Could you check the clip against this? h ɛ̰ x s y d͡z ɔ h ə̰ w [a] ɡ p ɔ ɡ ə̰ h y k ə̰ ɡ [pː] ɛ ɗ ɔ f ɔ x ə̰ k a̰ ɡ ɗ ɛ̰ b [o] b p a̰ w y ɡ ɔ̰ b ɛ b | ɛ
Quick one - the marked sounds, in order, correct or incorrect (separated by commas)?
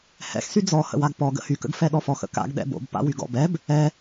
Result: correct, incorrect, incorrect